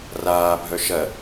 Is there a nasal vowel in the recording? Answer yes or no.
no